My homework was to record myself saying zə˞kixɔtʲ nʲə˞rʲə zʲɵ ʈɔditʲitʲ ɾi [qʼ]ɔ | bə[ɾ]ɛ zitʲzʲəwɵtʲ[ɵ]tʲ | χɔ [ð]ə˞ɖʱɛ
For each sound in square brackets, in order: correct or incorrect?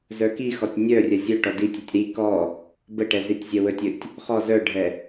incorrect, incorrect, correct, incorrect

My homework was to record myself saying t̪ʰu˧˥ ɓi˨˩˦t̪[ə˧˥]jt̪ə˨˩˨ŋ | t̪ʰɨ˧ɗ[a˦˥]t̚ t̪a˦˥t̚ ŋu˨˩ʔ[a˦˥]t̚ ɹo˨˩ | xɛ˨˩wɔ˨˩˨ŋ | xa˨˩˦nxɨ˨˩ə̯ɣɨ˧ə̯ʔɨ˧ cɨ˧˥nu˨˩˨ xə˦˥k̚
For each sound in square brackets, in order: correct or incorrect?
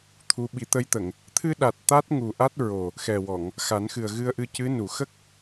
correct, incorrect, correct

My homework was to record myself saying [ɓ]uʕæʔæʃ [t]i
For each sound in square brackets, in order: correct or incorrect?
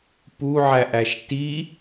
incorrect, correct

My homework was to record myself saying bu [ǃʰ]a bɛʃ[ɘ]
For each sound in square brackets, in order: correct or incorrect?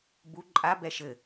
incorrect, correct

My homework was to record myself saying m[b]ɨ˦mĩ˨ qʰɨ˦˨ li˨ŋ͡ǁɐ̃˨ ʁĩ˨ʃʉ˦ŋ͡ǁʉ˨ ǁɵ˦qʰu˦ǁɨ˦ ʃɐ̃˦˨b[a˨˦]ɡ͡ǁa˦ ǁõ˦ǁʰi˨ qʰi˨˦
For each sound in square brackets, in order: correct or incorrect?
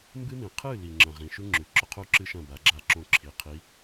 correct, correct

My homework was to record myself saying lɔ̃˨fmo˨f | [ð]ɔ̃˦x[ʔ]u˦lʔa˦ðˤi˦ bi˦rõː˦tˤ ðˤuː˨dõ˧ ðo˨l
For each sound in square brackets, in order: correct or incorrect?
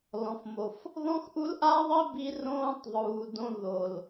correct, correct

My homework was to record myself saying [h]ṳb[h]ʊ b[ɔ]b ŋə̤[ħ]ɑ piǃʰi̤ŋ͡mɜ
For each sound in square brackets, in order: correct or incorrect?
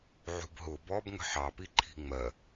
incorrect, incorrect, correct, correct

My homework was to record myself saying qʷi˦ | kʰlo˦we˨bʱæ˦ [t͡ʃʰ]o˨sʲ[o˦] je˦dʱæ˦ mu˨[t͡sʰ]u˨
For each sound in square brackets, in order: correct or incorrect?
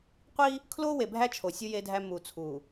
correct, incorrect, correct

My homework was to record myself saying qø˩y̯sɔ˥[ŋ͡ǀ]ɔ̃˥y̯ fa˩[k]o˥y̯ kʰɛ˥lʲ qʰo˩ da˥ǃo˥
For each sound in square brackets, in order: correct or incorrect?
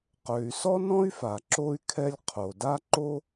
incorrect, incorrect

